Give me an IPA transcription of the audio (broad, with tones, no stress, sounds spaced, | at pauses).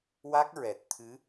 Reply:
w a˦˥ k̚ ɹ ɛ˨˩ t̚ t̪ʰ ɨ˧˥